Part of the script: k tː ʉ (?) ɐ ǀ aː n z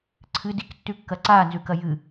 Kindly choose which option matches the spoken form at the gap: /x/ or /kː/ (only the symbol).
kː